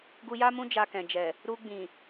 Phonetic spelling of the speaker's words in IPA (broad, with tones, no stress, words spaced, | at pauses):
ɡu˧ja˦mũ˦ d͡ʒa˧kɛ̃˨d͡ʒɛ˨ | ɾu˧ɡ͡bĩ˨